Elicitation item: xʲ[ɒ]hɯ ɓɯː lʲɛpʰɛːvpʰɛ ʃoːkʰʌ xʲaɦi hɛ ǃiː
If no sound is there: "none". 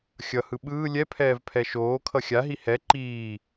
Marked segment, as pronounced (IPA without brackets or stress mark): ʌ